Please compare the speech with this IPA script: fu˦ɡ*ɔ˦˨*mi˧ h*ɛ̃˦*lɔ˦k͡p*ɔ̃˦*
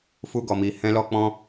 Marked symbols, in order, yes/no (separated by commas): no, yes, yes